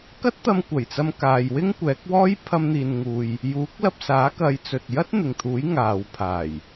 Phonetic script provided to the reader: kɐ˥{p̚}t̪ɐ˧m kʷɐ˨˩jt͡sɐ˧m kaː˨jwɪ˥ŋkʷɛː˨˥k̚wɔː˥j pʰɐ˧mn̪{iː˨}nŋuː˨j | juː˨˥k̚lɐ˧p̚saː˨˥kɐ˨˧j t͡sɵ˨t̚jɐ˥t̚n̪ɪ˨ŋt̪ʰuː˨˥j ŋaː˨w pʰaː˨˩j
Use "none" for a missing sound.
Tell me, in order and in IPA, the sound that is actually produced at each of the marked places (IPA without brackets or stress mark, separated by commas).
t̚, iː˨